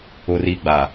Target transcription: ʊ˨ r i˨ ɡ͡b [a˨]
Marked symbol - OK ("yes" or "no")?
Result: yes